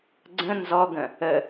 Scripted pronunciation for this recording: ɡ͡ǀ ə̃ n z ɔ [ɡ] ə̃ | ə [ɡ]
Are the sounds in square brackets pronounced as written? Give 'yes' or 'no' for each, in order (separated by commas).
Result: yes, no